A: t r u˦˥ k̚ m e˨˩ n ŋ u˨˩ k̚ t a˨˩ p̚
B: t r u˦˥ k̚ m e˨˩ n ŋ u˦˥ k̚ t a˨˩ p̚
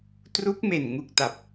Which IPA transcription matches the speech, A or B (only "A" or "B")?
A